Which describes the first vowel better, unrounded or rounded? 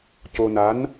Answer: rounded